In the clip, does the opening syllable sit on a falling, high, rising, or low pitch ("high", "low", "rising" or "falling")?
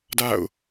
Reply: falling